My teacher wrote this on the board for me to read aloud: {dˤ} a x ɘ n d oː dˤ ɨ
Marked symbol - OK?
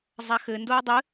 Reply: no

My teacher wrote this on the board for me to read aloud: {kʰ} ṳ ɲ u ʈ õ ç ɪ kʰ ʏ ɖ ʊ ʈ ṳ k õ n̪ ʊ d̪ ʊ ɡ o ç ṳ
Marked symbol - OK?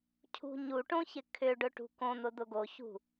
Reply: no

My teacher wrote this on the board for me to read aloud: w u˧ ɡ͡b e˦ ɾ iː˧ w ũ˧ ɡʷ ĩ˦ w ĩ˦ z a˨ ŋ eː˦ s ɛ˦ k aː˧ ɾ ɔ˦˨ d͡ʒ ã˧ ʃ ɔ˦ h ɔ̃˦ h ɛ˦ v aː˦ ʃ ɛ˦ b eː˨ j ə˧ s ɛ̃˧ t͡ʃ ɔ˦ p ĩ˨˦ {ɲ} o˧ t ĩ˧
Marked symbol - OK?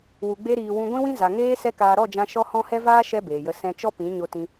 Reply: yes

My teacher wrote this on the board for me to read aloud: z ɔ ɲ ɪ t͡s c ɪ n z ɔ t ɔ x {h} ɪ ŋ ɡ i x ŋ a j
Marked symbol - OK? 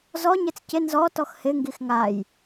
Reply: yes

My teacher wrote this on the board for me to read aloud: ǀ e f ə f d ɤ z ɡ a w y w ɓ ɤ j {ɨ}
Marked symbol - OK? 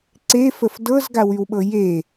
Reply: no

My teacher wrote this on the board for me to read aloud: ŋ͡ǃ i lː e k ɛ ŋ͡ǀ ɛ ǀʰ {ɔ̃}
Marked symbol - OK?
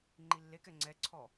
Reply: no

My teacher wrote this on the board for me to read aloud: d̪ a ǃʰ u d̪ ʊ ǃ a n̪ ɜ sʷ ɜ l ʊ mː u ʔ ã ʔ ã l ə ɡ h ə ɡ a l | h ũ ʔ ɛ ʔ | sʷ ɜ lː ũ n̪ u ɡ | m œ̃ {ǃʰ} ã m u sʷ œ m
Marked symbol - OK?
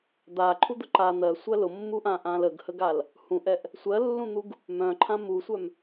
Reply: yes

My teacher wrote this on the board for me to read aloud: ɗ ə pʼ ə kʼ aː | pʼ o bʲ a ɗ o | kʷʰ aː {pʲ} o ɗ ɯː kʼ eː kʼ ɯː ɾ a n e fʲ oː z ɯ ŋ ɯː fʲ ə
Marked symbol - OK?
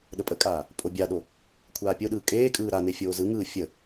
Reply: yes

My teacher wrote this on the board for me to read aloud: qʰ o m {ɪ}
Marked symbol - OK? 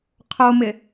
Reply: yes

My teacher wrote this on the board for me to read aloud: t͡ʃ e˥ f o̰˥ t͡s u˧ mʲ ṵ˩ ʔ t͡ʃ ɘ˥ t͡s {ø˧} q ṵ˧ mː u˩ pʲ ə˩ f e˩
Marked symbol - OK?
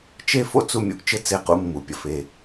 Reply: no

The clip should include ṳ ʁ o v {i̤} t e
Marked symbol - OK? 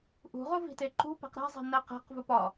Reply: yes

